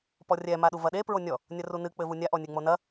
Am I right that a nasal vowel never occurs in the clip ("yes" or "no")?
yes